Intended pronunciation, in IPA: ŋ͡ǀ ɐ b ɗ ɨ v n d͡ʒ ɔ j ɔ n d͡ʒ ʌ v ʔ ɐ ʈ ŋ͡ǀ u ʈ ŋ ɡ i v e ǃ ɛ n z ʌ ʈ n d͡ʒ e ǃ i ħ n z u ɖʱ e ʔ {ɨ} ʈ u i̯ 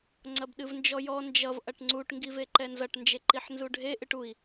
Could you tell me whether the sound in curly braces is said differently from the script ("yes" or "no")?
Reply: no